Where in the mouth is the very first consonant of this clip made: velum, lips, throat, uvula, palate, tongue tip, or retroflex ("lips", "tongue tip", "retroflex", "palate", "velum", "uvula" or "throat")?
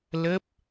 tongue tip